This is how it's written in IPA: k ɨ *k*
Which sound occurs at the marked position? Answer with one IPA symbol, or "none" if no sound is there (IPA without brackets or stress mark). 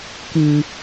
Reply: none